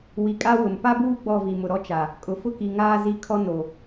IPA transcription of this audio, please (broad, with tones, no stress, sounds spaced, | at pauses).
w i˨ kʼ a˦ w ʊ˨ m p a˦ b uː˦ ɡ͡b ɔ˦˨ v i˨ m ʊ˨ ɾ ɔ˦ t͡ʃ a˨ | kʼ ʊ˨ f ʊ˦ k i˨ ŋ aː˦ z i˦ kʰ ɔ˦ n o˨